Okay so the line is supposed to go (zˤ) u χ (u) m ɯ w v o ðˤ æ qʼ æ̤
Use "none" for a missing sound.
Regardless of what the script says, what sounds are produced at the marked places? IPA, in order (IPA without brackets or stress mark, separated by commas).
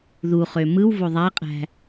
ð, ø